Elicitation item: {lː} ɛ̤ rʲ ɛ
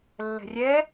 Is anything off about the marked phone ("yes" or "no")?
no